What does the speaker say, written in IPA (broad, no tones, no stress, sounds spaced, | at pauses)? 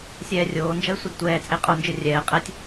sʲ ɛː rʲ oː n d͡ʒ ʌ y̯ sʷ i d tʷ ɛː t͡sʼ e qʼ o n d͡ʒ ɯ rʲ ɛː qʼ ɛ tʲ